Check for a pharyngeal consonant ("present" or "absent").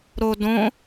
absent